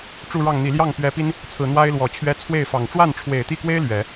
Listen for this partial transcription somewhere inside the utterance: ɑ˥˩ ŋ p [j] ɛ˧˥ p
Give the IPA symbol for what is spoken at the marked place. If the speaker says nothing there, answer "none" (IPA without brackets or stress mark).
ɥ